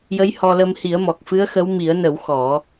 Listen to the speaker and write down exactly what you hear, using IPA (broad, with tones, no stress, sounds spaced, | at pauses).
j ə˧˥ j h ɔ˧ l ə˧ m h i˨˩˦ ə̯ m ɔ˨˩ k̚ f ɨ˧˥ ə̯ x ə˧˥ w m i˨˩˦ ə̯ n ə˨˩˦ w x ɔ˨˩˦